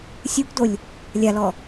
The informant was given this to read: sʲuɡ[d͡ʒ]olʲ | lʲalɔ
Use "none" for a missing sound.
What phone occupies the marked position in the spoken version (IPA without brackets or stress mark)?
d